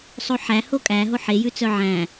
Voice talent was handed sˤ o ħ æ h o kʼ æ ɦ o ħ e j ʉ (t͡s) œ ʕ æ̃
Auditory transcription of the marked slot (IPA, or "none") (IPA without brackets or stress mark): t͡s